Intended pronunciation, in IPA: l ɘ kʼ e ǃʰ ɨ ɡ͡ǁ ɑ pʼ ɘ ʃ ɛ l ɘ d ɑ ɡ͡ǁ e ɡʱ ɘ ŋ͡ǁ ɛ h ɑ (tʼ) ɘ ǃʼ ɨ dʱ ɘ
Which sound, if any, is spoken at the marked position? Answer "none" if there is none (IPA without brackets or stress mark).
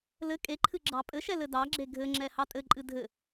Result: tʼ